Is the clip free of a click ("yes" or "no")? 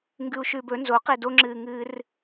no